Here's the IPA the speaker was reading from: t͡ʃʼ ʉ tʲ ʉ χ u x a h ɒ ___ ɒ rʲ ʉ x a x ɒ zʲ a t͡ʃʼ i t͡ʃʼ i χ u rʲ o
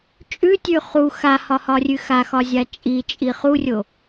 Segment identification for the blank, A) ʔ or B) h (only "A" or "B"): B